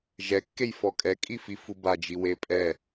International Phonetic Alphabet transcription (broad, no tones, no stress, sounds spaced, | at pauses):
ʒ ɛ kː e j f ɔ kʼ ɛ kʼ i f i f u b a d͡ʒ i w e pʼ ɛ